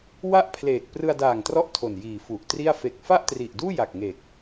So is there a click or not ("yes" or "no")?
no